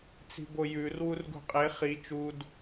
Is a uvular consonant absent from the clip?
no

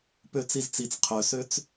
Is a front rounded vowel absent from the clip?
no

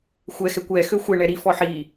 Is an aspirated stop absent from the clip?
yes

